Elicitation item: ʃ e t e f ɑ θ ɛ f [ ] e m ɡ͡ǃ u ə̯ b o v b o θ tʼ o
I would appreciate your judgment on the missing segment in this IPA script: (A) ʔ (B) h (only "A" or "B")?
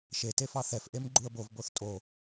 A